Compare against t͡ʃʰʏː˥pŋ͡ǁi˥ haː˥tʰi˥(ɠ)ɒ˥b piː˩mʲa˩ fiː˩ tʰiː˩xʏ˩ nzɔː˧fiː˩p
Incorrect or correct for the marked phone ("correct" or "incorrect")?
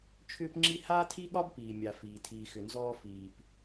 correct